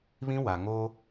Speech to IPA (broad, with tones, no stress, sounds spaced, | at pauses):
β ĩ˦ w a˨ ŋ o˦